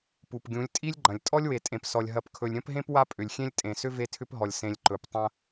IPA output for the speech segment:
pu˨pɡʲũ˨˦lʲ tʼi˦lʲɡ͡ǃɐ̃˨lʲ tʼɔ˦lʲwe˨tʼẽ˨psɔ˨lʲ ɦɐ˨pkʰɵ˨lʲɾʲɐ̃˦pɦẽ˦p wa˦pʼʏ˨lʲxʲẽ˦lʲ tʼẽ˨sʏ˦ ve˦tʰʏ˦pɦɔ˨lʲ sẽ˨lʲ ǃɵ˨ptˤɐ̃˦

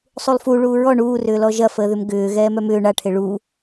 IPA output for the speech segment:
sˤulˠfu ɭuːɹɔ ɳuː rʏːlɔʒɐ fəːðʏmɡʏː ɣɛːmœmʏː ɳa ʈʰeɭuː

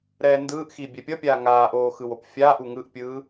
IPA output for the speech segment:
ɾɛːndɯːʔxiː bʲɛpʲʌpʲaː ŋaːʔoː xɯwopfʲaːʔu ŋɯʔpʲɯː

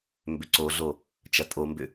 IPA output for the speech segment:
mbʏǀoɮo | t͡ʃɐtʼombʏ

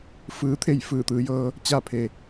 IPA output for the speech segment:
fɯː˧˥t̪ʰe˥˨j fɯː˧˩t̪ɯː˩˧jɤː˧ | t͡ɕa˥˨pʰe˩

